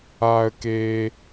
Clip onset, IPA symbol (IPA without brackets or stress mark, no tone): aː